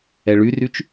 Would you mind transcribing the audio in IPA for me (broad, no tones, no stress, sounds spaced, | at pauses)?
ɛ ɭ y r y t͡ʃ